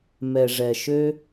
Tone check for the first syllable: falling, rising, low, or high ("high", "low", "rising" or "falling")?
low